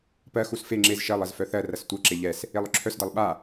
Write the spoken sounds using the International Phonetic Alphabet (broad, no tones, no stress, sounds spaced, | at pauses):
p ɜ x u s f e ŋ͡ǁ e z ʃ ɜ lˠ ɜ z f œ θ ɜ r ɐ s tʷ ɜ ǁ e ʎ ɛ s | e lˠ œ ǁʰ œ s d ɐ lˠ ɓ a